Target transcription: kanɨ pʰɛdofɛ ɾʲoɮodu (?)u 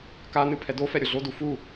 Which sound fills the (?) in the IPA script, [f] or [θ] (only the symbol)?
f